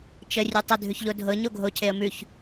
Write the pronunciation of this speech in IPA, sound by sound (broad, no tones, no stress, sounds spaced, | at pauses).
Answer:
t͡ʃ ə rʲ ʉ tˤ ə dʱ ʉ ç ʎ o dʱ ɤ ɲ o ɡʱ o cʰ e ə̯ m ʉ ç